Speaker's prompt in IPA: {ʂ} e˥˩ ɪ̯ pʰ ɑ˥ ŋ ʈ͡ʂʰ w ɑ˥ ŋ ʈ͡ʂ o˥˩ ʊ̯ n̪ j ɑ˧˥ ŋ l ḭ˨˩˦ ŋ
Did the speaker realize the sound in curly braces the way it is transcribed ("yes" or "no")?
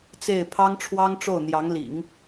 no